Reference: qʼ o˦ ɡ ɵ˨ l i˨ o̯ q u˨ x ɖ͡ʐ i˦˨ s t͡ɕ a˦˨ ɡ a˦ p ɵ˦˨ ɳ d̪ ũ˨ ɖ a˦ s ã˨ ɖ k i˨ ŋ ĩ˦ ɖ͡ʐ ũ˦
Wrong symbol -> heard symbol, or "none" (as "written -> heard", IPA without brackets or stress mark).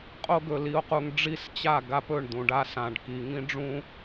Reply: x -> ŋ